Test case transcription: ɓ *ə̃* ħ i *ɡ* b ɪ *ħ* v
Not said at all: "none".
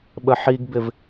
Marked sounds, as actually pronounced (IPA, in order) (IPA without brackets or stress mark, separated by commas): ə, ɡ, none